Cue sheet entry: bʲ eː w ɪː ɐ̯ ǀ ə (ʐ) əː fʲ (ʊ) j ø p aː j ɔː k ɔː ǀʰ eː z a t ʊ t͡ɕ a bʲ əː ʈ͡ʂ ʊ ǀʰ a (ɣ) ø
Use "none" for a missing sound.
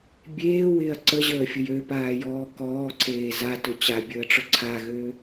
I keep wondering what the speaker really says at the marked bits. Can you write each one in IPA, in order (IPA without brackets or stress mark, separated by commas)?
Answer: ʑ, ʊ, ɣ